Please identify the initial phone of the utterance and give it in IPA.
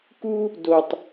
k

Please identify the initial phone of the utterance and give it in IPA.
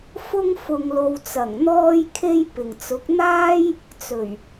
f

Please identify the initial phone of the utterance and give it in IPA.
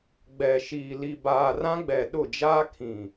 ɡ͡b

